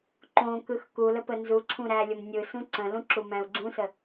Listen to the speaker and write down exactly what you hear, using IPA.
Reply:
ǃ õ k ɯ x k u l ə p ə n z u ǀʰ ũ ɾ æ lʲ ʊ m nʲ ɯ s ũ ǀ ə̃ l ũ ǁ u m æ̃ u̯ ɡ͡ǀ ũ s ə

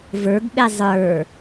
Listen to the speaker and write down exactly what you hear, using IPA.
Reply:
v ə˞ ɡ ɓ e zˤ ə˞

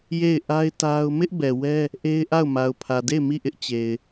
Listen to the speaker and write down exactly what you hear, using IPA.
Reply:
j e˦˨ ɪ̯ ʔ a˦ ɪ̯ t a˦ ʊ̯ m ɪ˦ ʔ b ɛ˨ w ɛ˦ | ʔ e˦ ɪ̯ ʔ a˦˨ ʊ̯ m a˨ ʊ̯ pʰ ä˨ d e˦˨ ɪ̯ m i˦˨ ʔ ɪ˦ ʔ t͡ɕ e˨ ɪ̯

